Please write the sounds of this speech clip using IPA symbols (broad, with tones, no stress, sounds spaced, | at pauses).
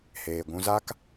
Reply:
h eː˨ ɡʷ ũ˧ z a˦ k